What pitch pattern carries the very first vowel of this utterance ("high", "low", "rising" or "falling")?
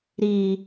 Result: low